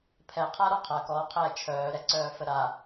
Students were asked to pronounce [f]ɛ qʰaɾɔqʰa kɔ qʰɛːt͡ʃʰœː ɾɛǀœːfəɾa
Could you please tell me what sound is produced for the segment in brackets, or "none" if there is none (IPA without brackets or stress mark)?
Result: pʰ